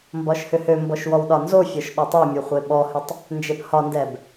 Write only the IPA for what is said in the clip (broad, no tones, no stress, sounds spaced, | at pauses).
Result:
m b ɒ ʃ h ʏ h ø m b ɔ ʃ w ɔ w ɗ ɒ n z o fʲ ɒ ʃ ɗ o tˤ ø mʲ u χʷ e ɓ ɔ h ʏ tˤ | n d͡ʒ e p h ɒ n d ɛ b